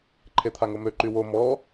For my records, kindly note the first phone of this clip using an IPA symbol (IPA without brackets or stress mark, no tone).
ǃʰ